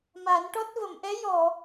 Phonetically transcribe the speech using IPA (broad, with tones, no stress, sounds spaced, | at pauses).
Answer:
m a˨˩˦ n ʈ ɔ˦˥ t̚ v ə˨˩˨ m ʔ ɛ˧˥ j ɔ˨˩˨